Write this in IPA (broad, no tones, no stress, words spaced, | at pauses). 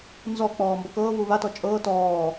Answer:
nzɔk͡pɔː mbɔkɤːvuː βatɔ t͡ʃʼɤː tɔː